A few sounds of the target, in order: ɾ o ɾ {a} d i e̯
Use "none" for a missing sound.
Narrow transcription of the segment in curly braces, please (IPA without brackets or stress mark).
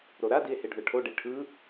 a